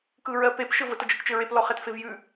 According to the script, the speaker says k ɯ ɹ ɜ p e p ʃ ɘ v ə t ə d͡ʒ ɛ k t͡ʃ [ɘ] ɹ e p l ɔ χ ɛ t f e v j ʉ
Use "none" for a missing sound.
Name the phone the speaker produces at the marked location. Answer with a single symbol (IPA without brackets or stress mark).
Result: ɘ